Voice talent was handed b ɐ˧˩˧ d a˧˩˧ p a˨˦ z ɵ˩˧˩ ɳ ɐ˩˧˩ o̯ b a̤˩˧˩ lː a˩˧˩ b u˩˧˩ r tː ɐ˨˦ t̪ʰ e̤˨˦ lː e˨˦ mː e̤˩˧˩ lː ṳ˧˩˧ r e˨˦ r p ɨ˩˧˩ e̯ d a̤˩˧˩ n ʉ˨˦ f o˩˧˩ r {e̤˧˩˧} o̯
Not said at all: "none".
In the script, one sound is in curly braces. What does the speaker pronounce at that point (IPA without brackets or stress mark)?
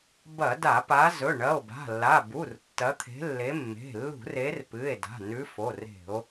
e̤˧˩˧